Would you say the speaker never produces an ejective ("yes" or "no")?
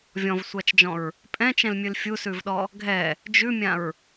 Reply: no